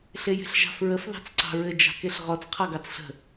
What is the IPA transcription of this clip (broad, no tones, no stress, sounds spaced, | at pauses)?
ɬ e j e̤ ɬ ʒ ɑ̤ f ɹ ə f ð ɑ̤ t͡s ǀ ɑ̤ ɹ ɘ d͡ʒ ɑ̤ k e ɬ ʁ ɔ t͡s qʰ ɑ ɡ ɑ t͡s ɬ ə̤